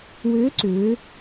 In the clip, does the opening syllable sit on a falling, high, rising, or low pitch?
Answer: rising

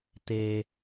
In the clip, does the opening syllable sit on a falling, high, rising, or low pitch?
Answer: low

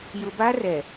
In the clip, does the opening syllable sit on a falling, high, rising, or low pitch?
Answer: low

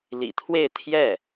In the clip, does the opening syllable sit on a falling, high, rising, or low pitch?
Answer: low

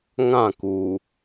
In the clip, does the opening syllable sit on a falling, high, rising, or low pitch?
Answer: falling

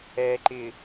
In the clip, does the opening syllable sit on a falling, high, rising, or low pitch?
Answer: low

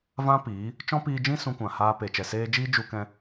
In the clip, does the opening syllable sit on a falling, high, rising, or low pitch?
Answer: high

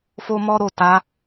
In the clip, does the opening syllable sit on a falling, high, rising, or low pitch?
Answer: high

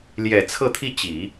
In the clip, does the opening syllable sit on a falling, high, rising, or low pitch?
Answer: low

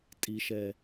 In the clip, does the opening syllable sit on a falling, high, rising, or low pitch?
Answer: low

